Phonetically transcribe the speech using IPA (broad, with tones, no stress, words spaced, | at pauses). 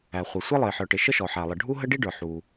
æ˩χʷə˩ sʷɛ˥lˠɪː˩ħə˞˩ʈɪ˩ ʃə˥ʃɔ˩ħæ˩lˠə˩ ɖʱu˥ɦə˥ ɖi˥ɖə˞˩ ħu˩